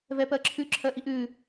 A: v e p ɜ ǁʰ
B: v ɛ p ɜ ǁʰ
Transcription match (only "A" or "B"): B